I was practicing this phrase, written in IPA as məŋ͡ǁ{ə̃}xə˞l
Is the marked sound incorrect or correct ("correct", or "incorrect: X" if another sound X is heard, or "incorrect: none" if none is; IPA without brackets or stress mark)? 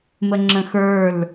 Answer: correct